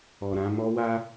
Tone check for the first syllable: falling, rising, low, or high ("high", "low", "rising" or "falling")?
low